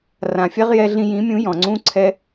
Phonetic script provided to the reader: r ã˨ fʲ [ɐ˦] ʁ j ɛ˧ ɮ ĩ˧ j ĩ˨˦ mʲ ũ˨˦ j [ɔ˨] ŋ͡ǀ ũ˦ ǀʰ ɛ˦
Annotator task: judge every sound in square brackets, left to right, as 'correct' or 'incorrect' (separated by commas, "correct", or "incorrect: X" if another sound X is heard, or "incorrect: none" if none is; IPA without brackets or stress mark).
incorrect: a˦, incorrect: ɔ̃˨